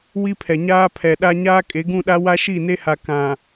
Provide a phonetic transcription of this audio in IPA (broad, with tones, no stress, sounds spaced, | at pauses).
w i˦ pʰ ɛ˨ ɲ aː˦ pʰ ɛ˨ ɗ a˦ ɲ aː˦ kʼ e˨˦ ɡ ũ˦˨ ɗ a˦ w a˦ ʃ i˦˨ n e˦ h a˨ k ã˨